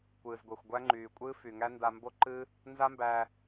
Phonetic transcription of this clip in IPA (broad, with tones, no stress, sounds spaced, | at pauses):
kʷ ɨː˨ z ɡʷ ɛ˨ xʷ ɡʷ æ˦ ŋ͡ǃ yː˨ kʷʼ ɨː˦ f y˨ ŋ æ˦ n d a˧ m b o˦ ǃ ɨ˦ | n z a˦ m b æ˧